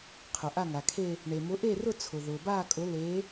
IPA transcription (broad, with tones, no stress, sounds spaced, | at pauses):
qʰ ʊ˩ ʔ a˥˧ ŋ a˩ kʰ e˥˧ | ɳ e˩ m ʊ˨˦ ʔ e˥˧ r ʊ˥˧ t͡sʰ ʊ˩ ð ʊː˩ b aː˥˧ kʼ ʊ˨˦ l e˨˦